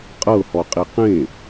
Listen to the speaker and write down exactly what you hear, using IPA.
qʼ ɤ h ɔ qʼ i q ẽ

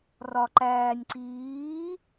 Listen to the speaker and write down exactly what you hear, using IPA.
r ɒ ǃ æː nʲ ǀ iː

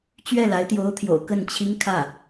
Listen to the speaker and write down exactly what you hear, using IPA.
t͡ɕ ɥ ɛ˥˩ l a˧˥ ɪ̯ t̪ j o˧˥ ʊ̯ t̪ʰ j o̰˨˩ ʊ̯ k ə˥˩ n t͡ɕʰ i˥ ŋ kʰ ä˥˩

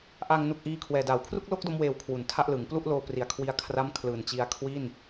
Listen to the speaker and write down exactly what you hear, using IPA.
ʔ aː˧ ŋ n u˨˩ k̚ ʔ iː˧ kʰ w ɛː˨˩ d aː˩˦ w kʰ r u˥˩ k̚ l o˥˩ k̚ d o˧ m w eː˩˦ w kʰ w u˩˦ n tʰ a˥˩ ʔ l ɯː˩˦ ŋ p l u˥˩ ʔ l oː˧ p r i˩˦ a̯ kʰ w i˧ a̯ kʰ r a˥˩ m kʰ l ɯː˨˩ n t͡ɕ i˦˥ a̯ kʰ w i˥˩ n

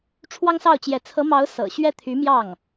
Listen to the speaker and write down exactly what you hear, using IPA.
ʈ͡ʂʰ w ɑ˥ ŋ s ɑ˥˩ ʊ̯ t͡ɕ j ɛ˧˥ t͡sʰ ɤ˧˥ m ɑ˧˥ ʊ̯ s ɤ̰˨˩ ɕ ɥ ɛ˥˩ t̪ʰ y˧˥ m j ɑ˥˩ ŋ

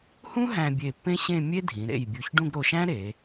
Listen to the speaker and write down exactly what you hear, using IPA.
h ũ˥ ɦ æ̃˧ bʲ e˧˩ pː ẽ˥ ɕ ẽ˥˧ mʲ e˥ dʱ ĩ˩˧ ɾ ḛ˧˩ j bʲ u˧˩ ç ɖ ũ˥˧ ɡ ɾ o˧ ʃ æ̃˥ ɾ e˩˧

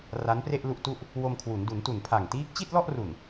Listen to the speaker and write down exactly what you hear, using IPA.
r a˦˥ n p r e˥˩ ʔ l u˥˩ ʔ t u˥˩ ʔ | w o˧ m kʰ w u˩˦ n d u˩˦ n t u˨˩ n pʰ a˨˩ ŋ t iː˦˥ k̚ t͡ɕ i˥˩ t̚ l ɔ˥˩ ʔ r u˨˩ n

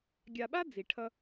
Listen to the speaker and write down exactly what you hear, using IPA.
ɡʲ a˨ ɓ a˥ d͡z i˩ ʈʰ ʌ˨

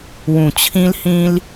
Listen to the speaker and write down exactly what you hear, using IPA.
w ũ˨˩ t͡ɕʰ ĩ˦ l h ĩ˦ l

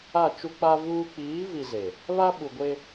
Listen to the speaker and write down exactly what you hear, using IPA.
a˦˨ t͡ʃ u˦ k͡p a˦ v uː˦ k͡p iː˨˦ v i˨ z e˨ | β a˦ ɓ u˨ ɡʷ e˦

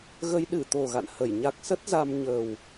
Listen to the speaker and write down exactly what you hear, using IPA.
ɣ ə˧ j ɗ ɨ˧˩ t̪ o˨˩ ɣ a̰˧˨ n h ə˧˩ j ɲ a˦˥ k̚ s ə˦˥ t̚ z a˧ m ɲ ə˨˩ w

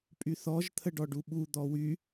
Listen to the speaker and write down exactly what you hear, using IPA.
pʼ y θ ɔ ʒ t̪ʰ ə ɖ ɔ ɖ u ɓ u d̪ ɔ w y

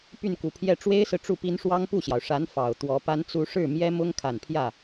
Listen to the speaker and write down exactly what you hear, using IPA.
p y˥˩ n k u˨˩ pʰ j ɛ˥˩ ʈ͡ʂ w e˥ ɪ̯ s ɹ̩˨ ʈ͡ʂ u˥˩ p i˥ n ʂ w ɑ˥ ŋ p u˥˩ ɕ j ɑ˩ ʊ̯ ʂ a˧˥ n f ɑ˨˩ ʊ̯ t̪ w ɔ˧˥ p a˥ n t͡s u˥ ʂ ɻ̩˥˩ m j ɛ˥ m ʊ˥ ŋ kʰ a˨˩ n pʰ j ä˥˩

